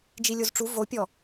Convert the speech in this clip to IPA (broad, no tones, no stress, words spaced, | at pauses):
d͡ʒilʲozʈ͡ʂu vopʲɔ